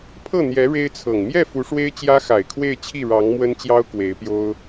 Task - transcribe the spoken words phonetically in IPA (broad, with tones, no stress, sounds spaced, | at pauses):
pʰ ɤ˥˩ n̪ j ɛ˧˥ ɻ e˥ ɪ̯ t͡sʰ ɤ˨˩ ŋ m j ɛ˥˩ f u˧˥ ʂ w e˥ ɪ̯ t͡ɕ j ä˥ x a˨˩ ɪ̯ kʰ w e˥˧ ɪ̯ t͡ɕʰ i˥˩ ɻ ɑ˧˥ ŋ m w ə˥ n t͡ɕ j ɑ˥ ʊ̯ k w e˧˥ ɪ̯ p j o˥ ʊ̯